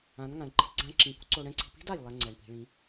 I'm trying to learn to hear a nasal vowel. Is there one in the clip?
yes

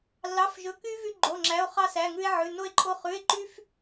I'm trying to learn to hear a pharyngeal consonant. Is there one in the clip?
yes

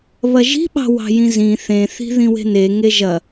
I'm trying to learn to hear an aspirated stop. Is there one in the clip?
no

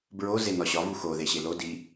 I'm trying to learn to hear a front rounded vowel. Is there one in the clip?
no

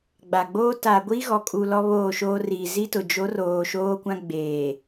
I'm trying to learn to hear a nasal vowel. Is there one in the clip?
yes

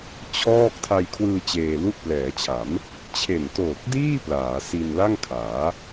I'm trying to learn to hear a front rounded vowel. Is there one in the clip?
no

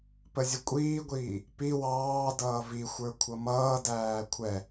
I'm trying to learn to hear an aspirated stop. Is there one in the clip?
yes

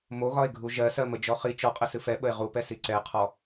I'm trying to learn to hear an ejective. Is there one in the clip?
yes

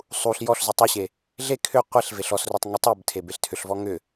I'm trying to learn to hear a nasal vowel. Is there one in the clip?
no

